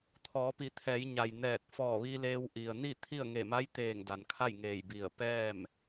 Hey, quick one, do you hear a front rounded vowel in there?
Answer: no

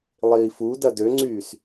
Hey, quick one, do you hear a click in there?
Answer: yes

